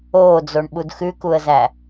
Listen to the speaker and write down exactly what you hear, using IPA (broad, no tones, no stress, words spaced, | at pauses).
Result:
oːd͡zoɳɓud xʉkuə̯zæ